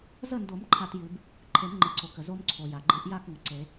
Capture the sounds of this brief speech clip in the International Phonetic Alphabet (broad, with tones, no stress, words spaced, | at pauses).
zə˥˨ndo˨˩˦m ǃʰa˦tjɨ˨˩˦b | ǃʰe˨˩˦mŋ͡ǃɨ˩ǀo˩kə˩ zo˦mǀʰo˩ja˩ ɡ͡ǃɨ˨˩˦ʔja˥˨k ŋə˩ǀe˨˩˦